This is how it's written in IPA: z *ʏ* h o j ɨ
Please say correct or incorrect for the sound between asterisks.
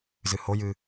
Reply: incorrect